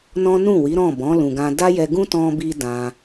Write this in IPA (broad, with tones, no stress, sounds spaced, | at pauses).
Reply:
n ɔ̃˦ n ũ˦˨ w i˨˦ ɾ ɔ̃˦˨ b ɔ̃˨˦ l ũ˧ ɡ ã˦ d a˦ j ɛ˧ ɡ ũ˦ t ɔ̃˧ b i˧ d ã˧